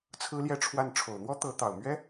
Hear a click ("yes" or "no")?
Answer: no